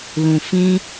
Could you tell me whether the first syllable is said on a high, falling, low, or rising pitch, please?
low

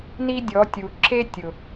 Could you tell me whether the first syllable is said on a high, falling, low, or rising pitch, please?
high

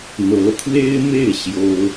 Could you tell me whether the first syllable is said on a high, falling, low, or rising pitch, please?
rising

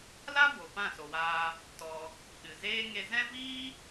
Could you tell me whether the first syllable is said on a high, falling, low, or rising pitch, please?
high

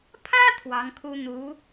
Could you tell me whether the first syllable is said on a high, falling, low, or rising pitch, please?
high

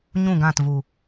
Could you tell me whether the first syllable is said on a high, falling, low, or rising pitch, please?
falling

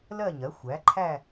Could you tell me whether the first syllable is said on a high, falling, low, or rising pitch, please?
falling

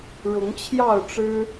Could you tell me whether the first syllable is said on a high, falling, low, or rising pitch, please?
rising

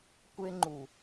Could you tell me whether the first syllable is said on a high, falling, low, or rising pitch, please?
high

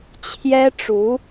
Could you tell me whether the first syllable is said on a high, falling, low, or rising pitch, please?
high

